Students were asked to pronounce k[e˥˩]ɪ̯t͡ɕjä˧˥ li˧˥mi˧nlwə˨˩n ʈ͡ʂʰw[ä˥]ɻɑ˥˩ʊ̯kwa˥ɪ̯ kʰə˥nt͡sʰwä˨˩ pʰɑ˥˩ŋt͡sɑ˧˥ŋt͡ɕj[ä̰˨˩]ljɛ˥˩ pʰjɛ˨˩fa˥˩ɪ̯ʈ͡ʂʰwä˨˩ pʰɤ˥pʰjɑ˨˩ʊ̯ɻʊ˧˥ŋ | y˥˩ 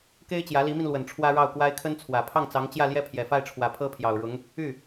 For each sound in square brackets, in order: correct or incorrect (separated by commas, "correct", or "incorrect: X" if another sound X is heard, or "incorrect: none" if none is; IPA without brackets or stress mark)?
incorrect: e˥, correct, incorrect: ä˥˧